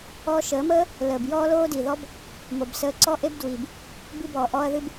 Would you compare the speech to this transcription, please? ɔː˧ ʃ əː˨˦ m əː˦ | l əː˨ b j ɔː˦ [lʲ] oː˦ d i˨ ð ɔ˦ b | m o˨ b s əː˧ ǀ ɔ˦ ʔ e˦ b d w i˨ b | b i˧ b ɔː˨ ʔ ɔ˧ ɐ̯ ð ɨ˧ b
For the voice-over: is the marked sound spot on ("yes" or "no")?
no